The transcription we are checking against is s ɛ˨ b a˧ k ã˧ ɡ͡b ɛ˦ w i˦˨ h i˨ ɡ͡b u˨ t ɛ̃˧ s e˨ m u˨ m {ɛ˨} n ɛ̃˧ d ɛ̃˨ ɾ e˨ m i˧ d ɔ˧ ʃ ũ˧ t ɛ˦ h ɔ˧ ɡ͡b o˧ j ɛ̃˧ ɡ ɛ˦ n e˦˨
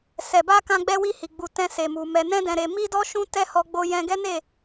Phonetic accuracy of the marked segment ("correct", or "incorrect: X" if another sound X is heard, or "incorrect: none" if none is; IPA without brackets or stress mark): correct